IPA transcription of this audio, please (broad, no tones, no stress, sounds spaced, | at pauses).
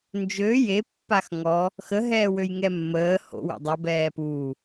n d͡ʒ ø j e pː a x ŋ ɔ | x ə ɦ ɛː w ø j ŋ ɛ mː əː h o̰ w ḛ dˤ o b ɛː p uː